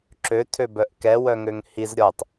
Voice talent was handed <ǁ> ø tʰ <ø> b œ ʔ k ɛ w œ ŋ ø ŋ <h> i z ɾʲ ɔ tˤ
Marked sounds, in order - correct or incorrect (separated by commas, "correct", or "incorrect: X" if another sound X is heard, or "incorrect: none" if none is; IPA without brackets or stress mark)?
correct, correct, correct